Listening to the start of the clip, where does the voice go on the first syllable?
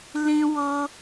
high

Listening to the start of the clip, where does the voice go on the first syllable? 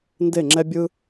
falling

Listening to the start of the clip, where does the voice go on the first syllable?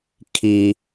high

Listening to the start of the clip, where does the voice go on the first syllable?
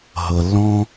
low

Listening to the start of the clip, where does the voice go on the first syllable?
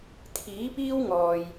rising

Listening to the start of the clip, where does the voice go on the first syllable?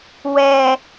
low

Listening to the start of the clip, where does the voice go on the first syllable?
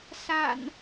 low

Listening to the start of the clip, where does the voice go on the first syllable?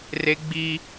high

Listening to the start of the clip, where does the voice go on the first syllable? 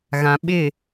low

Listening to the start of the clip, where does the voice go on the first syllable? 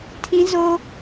high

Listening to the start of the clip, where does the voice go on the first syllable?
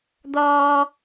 high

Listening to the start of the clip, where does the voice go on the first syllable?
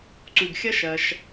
low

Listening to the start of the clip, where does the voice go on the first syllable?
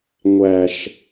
low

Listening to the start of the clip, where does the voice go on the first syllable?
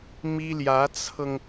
high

